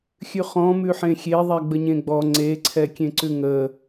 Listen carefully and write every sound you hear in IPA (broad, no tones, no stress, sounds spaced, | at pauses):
xʲ ʉ χ ɔ̃ m ʉ ħ ẽ xʲ e ðˤ ɛ ɡ͡b ə ɲ ẽ ɡ͡b ɔ ŋ͡ǀ e ǀʰ ɛ kʲ ẽ ǀ ʉ ŋ ə